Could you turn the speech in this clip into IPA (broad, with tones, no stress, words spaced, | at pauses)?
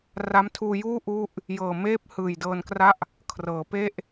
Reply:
ra˦˥mtʰuː˧juː˥˩ ʔu˥˩ʔ | jɤː˨˩meː˥˩p̚ hɯː˨˩jdɤː˧nkra˥˩ʔ | kʰrɤː˩˦pe˥˩ʔ